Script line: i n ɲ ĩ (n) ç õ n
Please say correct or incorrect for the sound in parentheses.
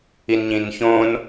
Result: correct